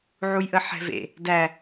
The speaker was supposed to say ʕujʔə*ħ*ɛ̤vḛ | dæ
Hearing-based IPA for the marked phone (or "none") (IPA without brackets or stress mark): ħ